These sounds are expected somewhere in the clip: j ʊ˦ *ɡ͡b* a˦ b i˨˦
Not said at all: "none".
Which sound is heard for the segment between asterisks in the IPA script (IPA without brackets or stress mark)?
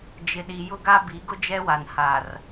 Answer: ɡ